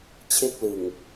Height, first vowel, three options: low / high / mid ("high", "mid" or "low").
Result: mid